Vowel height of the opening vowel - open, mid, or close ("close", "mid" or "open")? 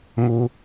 close